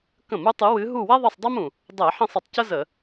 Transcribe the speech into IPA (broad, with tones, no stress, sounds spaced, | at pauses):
k ə̃˧˩˧ m u˨˦ tˤ ɨ˨˦ w ɨ˨˦ ɦ u˦˨ w ɛ˥ ðˤ ɘ˦˨ sˤ dˤ e˥ m ũ˩ | dˤ ɛ˧˩˧ ħ ẽ˦˨ sˤ ɘ˩ tˤ c ə˥ z ə˧˩˧